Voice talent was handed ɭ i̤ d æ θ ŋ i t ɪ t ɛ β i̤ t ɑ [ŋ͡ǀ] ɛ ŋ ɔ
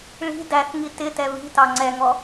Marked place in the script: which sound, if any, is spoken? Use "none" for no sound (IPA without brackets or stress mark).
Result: ŋ͡ǀ